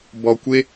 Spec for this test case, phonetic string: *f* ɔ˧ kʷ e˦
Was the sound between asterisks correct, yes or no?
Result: no